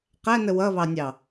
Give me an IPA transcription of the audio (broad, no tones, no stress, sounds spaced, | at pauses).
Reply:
q æ n ə w ʌ β ɑ nʲ ɑ